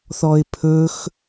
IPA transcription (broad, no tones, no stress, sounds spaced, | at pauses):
θ ɔ ɪ̯ pʰ ɵ x